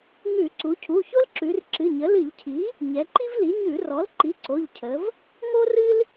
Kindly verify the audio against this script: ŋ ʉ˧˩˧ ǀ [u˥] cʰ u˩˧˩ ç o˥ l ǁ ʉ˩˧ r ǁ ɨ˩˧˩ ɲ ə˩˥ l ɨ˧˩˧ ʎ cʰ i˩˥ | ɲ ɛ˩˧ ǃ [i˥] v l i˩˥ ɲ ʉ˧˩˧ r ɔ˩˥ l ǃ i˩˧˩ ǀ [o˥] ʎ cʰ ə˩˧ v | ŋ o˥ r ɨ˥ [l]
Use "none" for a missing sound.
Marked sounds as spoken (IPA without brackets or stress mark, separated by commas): u˩˧, i˥, o˩˧˩, l